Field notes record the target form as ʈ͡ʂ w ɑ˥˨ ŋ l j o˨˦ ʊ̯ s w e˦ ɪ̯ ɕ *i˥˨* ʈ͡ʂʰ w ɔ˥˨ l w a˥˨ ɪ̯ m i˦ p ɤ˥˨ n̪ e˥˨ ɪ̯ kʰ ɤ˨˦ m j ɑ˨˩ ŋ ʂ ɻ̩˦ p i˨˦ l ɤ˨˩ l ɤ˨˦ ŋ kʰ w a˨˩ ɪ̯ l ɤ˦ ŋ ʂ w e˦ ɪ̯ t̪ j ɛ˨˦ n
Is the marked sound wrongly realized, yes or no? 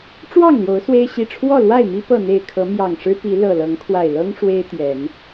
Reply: yes